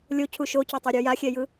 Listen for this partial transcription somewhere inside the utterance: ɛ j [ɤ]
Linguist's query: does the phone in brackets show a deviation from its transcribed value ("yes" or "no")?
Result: yes